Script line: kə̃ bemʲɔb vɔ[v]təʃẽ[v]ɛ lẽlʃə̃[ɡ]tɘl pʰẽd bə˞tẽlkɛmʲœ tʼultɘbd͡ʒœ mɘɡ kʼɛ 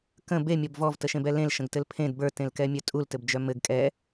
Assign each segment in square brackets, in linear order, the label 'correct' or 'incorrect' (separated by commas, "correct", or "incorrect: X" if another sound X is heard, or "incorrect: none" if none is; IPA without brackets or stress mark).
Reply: correct, incorrect: b, correct